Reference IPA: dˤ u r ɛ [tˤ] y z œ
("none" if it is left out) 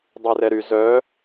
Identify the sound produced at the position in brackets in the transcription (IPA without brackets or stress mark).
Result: ɾ